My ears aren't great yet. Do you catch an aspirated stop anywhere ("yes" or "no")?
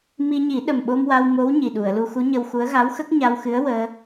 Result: no